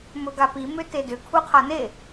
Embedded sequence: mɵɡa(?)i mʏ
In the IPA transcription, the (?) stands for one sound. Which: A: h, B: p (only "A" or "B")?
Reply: B